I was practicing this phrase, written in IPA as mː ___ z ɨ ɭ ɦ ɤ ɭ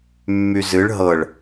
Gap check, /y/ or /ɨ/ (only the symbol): y